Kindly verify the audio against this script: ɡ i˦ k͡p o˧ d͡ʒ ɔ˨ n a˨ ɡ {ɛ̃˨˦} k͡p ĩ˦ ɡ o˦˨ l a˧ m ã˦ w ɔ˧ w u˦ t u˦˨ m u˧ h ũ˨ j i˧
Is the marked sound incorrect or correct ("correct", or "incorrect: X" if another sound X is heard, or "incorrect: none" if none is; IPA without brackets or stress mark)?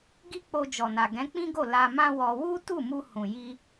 correct